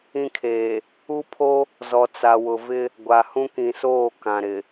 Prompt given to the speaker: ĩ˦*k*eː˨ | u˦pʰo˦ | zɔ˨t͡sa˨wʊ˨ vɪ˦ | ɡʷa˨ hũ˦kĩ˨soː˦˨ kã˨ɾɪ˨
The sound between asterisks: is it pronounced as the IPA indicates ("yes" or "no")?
no